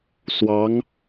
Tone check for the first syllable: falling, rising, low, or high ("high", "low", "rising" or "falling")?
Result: rising